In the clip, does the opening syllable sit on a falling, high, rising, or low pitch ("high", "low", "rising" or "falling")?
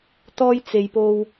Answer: high